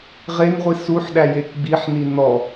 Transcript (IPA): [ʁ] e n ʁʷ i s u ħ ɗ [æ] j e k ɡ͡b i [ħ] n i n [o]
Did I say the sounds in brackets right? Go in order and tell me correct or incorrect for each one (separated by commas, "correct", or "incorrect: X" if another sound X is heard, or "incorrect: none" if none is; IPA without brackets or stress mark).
correct, correct, correct, incorrect: ɔ